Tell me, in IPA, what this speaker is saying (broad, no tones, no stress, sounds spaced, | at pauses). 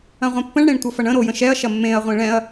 ɐ̃ ʁʷ ɛ̃ pː ə̃ ɳ ɽ ẽ ɳ tʷ ʌ f ɐ ɳ ə̃ ɾ o j ə̃ ʃ ɛ ɐ̯ ʃ ɐ mː ẽ ɐ̯ ʁʷ ẽ ɭ ɛ̃ ɐ̯